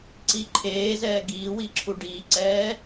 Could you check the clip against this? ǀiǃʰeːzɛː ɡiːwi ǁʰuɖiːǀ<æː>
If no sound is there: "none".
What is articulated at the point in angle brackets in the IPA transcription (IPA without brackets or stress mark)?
ɛː